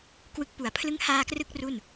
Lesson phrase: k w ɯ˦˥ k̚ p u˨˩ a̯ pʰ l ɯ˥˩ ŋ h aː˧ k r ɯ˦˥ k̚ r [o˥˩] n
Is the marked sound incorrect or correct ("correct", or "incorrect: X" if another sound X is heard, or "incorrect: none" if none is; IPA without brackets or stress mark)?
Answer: incorrect: u˥˩